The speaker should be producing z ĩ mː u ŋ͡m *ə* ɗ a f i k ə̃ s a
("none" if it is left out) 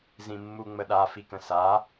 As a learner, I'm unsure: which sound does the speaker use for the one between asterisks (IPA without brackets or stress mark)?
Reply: ə